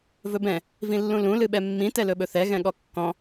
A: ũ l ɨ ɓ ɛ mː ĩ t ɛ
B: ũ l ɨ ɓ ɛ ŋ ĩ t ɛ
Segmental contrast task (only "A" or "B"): A